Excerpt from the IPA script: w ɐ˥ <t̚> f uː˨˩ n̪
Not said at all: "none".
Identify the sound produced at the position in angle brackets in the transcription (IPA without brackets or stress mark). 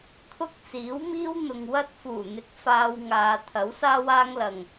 t̚